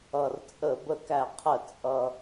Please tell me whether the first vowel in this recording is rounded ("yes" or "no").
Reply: no